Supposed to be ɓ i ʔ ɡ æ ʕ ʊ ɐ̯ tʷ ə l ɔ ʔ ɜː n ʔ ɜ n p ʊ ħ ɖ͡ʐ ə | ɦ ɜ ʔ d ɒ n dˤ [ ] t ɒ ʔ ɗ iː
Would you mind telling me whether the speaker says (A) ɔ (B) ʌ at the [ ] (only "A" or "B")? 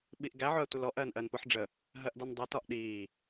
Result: B